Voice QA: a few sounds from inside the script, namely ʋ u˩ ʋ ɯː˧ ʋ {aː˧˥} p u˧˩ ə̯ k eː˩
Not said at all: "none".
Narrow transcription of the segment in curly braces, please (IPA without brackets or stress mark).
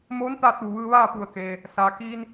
aː˥˨